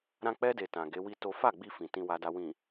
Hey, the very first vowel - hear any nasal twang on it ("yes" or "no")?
yes